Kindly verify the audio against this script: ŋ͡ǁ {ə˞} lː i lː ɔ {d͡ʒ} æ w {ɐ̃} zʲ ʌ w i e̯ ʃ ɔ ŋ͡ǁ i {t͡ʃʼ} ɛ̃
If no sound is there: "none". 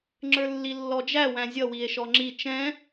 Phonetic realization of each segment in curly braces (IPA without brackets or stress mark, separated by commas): ə˞, d͡ʒ, æ̃, t͡ʃ